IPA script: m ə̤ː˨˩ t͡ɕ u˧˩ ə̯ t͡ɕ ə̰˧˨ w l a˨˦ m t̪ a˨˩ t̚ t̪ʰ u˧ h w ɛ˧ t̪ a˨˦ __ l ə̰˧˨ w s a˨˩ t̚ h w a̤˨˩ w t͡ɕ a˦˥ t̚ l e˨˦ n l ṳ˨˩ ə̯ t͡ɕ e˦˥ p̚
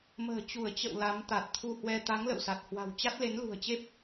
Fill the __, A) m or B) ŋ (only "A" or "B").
B